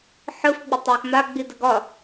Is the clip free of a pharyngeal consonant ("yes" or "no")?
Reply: no